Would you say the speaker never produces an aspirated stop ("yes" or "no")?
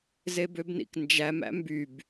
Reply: yes